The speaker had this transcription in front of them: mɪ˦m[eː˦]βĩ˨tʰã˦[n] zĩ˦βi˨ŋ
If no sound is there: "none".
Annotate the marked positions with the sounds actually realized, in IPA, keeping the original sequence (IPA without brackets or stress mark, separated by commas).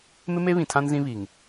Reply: e˦, n